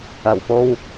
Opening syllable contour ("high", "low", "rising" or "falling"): low